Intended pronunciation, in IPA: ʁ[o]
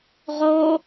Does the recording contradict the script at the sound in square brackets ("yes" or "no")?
no